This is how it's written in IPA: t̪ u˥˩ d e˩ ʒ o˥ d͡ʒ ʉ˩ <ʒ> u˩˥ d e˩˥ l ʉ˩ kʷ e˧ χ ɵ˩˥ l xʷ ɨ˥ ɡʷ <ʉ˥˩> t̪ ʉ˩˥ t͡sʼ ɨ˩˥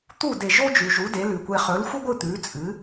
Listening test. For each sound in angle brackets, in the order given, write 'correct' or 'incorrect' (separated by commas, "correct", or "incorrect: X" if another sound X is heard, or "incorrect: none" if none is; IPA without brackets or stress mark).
correct, incorrect: ɨ˥˩